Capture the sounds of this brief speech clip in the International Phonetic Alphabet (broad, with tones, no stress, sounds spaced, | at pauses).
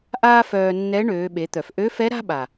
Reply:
ʔ aː˥ f œː˧ nː ɛ˧˥ ɳ øː˩˧ ɓ e˩˧ t̪ œ˩ f ʔ ø˧˥ f ɛ˧˥ ɾ a̤˥ ɓ a˩